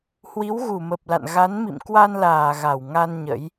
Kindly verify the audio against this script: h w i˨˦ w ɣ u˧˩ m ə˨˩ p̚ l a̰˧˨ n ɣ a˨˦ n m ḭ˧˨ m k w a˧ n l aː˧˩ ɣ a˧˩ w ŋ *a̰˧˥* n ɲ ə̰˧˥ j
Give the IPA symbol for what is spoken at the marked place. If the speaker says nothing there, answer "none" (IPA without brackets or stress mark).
a˧